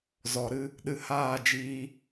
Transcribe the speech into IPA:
z ɔ˨ ɾ ɨ˧ | ɗ ɨ˧ h aː˦˨ d͡ʒ iː˧

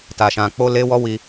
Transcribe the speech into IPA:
t a˧ ʃ ã˧ k͡p o˦ l e˦ w ɔ˦ w i˦

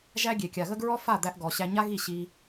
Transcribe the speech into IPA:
ʒ æ˦ ɡʲ e˨ kʲ a˨ ɣ ə˦ ɡ ɹ ɔ˦ f a˦˨ d̪ æ˧ ʔ ɡ ɔ˨ ɕ æ˧ ɲ a˦ ɣ i˦˨ ɕ i˧

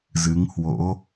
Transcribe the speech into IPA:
z ɨ˨˦ ŋ h w o̰˧˥

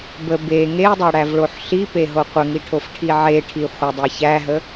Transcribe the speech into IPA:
b ə b e ŋ e dˤ æ ɽ æ v ɭ o ħ ɬ i p e ɦ o qʷ ə ŋ i ʈʰ o f ʈʰ i ʕ e ʈʰ i χʷ ə dˤ e ç æ ɦ ə

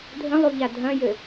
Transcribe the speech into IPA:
dʱ ə̃ lˠ u ʎ a dʱ ɐ̃ j ɘ

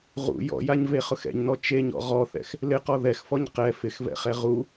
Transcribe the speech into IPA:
ʁ ṵ j ɔ̰ j a ɲ v e χ ʊ x ɛ̰ ɲ n ɔ t͡ʃ e ɲ ɔ̰ ʁ ɔ θ ɛ̰ x | l ɪ q ɔ ð ɛ x f ɔ ɲ q ɛ f ɪ x v ɛ̰ χ ɛ ʁ u

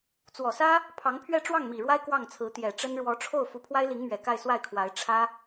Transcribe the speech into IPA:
t͡s w ɔ˨˩ s ä˥ | pʰ ɑ˧˥ ŋ pʰ ɥ ɛ˥˧ ʈ͡ʂ w ɑ˥˩ ŋ m i˨˩ ɻ w a˥ ɪ̯ k w ɑ˥˩ ŋ t͡sʰ ɹ̩˧˥ t̪ j ɛ˨˩ ʈ͡ʂ ə˥ n ɻ w ɔ˧˥ ʈ͡ʂʰ o˥˩ ʊ̯ f u˧˥ pʰ w a˥ ɪ̯ l i˧˥ ŋ m ɥ ɛ˨˩ k a˥˧ ɪ̯ s w a˥˩ ɪ̯ kʰ w a˧˥ ɪ̯ ʈ͡ʂʰ ä˥

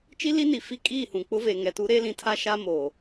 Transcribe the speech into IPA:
t͡ʃ i˦ l i˦ n i˨ f i˦ kʼ iː˦˨ h ũ˨ k͡p ʊ˦ v e˨ ŋ ɛ˨ t u˦ ɾ eː˦ l ĩ˨ tʰ a˦ ʃ a˦ m oː˨

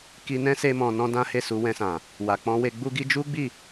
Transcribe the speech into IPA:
k i˧ n ɛ̃˦ s e˦ m ɔ̃˧ n ɔ̃˦ d ã˦ h e˦˨ s u˧ w ɛ̃˧ s ã˨ | w a˨ k͡p ɔ̃˧ w e˧ ɡ͡b u˧ ɡ i˧ d͡ʒ u˦ ɡ͡b i˦˨

